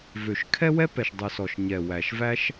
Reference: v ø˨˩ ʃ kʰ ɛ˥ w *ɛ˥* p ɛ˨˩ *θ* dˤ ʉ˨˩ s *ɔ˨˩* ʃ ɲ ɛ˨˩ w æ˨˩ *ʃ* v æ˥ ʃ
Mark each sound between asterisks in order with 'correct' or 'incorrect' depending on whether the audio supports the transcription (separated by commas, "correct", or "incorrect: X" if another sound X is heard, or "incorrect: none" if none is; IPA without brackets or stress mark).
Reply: correct, incorrect: ʃ, correct, correct